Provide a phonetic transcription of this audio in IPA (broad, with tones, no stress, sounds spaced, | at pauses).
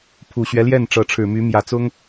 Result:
pʰ u˨˩ ɕ ɥ ɛ˦ l j ɛ˥˩ n ʈ͡ʂ ɤ˧˥ ʈ͡ʂʰ ɻ̩˨˩ m y˧˥ m j ä˨˩ t͡s ʊ˥ ŋ